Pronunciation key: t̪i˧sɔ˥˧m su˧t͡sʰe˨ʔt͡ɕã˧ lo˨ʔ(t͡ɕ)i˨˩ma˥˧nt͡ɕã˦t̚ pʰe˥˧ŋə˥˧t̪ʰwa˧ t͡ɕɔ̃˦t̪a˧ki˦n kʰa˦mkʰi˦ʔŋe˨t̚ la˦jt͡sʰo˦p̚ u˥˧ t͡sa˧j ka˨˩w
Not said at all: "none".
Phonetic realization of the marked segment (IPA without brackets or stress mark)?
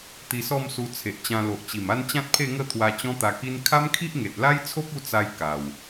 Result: t͡ɕ